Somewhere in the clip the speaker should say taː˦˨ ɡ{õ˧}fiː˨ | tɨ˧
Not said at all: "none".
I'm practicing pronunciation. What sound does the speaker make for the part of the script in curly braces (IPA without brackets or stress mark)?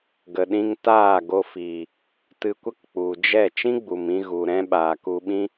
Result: o˧